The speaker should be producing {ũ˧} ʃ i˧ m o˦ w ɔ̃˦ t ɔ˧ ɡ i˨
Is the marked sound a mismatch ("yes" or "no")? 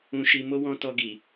no